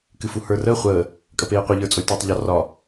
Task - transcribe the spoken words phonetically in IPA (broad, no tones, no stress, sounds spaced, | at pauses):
k ɨ f u h ə˞ r əː χʷ əː | kʼ ə p eː qʷ e ʎ ə˞ t͡sʼ o lʲ t oː tˤ ʎ ɒ r ɒ